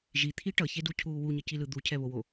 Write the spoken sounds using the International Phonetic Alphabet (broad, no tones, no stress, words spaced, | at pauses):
ʒit̪ʰi ʈʌçeducʰuː wuɲʌcilɯ d̪ucʰɛβowo